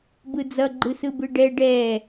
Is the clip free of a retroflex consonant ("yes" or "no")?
no